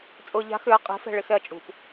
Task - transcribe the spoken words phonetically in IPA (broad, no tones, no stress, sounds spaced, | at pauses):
t͡sʼ ʊː ʎ a̤ x ʏ ɐ̯ qʼ e̤ f ɛ̤ ɭ ɪ x ɛ ɐ̯ t͡ʃʼ ṳ p